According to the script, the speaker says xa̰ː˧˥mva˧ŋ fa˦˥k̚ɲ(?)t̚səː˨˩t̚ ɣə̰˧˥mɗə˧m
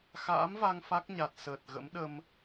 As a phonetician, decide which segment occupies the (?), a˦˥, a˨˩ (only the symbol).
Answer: a˨˩